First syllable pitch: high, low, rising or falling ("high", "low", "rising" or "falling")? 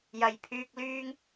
low